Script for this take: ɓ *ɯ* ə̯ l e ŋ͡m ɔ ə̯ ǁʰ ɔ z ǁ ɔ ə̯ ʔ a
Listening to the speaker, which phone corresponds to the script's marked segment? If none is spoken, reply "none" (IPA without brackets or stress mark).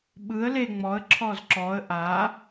ɯ